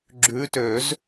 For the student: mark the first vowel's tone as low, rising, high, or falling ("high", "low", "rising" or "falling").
rising